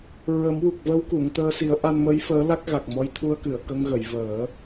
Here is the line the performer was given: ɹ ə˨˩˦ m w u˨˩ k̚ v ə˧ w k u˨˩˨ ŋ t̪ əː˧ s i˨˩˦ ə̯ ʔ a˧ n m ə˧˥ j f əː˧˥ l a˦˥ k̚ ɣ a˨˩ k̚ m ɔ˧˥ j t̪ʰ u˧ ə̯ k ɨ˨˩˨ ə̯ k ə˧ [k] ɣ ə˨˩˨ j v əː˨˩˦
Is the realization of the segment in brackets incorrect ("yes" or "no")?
yes